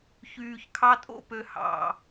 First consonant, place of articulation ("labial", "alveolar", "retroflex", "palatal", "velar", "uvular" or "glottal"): palatal